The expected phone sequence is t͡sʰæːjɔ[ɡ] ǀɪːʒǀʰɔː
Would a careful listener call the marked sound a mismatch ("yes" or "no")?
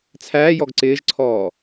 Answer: no